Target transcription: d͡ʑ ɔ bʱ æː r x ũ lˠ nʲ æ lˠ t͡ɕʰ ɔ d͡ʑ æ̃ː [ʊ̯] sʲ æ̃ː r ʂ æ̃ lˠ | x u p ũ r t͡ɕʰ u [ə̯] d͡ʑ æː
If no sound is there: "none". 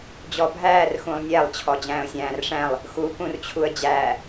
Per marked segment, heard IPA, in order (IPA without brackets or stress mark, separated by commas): ʊ̯, ə̯